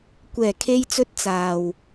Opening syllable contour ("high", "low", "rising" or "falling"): low